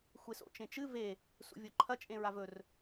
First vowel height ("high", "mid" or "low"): mid